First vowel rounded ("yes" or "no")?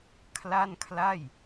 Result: no